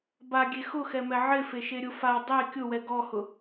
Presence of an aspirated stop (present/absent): absent